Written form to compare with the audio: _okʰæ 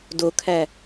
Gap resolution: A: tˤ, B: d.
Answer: B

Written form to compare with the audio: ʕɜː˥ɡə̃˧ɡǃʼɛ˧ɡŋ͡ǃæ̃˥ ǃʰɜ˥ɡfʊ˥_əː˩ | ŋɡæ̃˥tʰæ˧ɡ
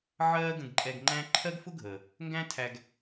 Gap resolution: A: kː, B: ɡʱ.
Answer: B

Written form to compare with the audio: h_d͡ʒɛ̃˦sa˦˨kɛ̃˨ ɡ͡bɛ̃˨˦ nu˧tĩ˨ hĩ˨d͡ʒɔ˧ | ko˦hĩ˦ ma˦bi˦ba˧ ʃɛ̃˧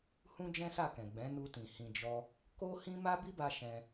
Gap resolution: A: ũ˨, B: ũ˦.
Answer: B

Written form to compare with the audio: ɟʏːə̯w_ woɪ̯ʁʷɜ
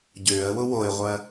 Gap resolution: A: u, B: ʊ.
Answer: B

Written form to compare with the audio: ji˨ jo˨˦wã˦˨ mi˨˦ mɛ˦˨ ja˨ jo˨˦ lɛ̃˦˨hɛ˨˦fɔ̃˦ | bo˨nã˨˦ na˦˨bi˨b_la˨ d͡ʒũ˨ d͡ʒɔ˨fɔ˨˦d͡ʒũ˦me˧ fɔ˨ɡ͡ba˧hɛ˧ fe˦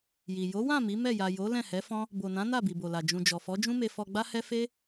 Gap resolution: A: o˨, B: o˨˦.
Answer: A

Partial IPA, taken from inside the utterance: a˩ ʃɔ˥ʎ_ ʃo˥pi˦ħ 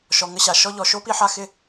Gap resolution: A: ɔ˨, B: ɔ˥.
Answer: A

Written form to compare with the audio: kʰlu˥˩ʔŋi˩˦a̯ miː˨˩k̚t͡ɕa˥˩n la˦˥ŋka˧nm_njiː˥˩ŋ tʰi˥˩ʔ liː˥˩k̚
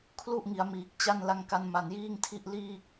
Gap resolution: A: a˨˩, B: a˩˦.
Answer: A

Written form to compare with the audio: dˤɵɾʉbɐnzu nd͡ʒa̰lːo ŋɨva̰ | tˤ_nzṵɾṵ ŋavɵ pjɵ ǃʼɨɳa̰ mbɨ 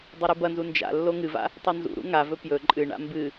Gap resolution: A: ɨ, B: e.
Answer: A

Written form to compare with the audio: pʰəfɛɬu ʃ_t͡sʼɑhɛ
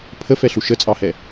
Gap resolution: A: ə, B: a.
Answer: A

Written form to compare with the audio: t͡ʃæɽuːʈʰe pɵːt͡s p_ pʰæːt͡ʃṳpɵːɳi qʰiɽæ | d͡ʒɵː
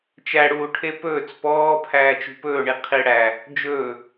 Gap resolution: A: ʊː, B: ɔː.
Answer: B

